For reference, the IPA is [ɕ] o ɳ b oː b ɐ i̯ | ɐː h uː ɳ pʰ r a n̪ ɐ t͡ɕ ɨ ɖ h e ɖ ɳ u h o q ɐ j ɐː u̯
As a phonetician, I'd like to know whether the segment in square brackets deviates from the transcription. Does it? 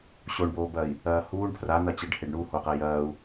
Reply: no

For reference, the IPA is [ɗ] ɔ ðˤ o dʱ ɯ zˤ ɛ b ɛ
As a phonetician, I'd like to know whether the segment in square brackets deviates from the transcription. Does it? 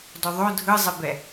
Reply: yes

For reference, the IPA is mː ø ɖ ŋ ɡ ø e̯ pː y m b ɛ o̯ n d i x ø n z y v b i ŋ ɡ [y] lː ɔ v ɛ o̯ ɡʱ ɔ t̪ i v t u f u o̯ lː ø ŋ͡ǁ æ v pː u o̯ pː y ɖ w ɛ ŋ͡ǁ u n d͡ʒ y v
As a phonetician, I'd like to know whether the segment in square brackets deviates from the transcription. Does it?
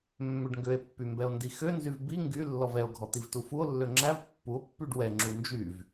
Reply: no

